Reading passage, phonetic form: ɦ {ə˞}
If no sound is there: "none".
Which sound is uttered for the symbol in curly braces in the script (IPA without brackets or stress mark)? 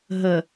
ə